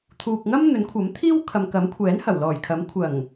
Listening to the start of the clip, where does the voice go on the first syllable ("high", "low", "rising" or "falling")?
low